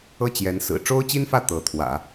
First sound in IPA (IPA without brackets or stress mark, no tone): ɤ